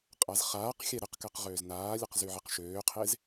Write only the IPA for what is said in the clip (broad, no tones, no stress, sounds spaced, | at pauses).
qʼ a z χ aː q xʲ ɛ ɾ ə q k ɛ q ʁ øː z n aː lʲ ə q z y ʕ e q ʃ øː qʰ e z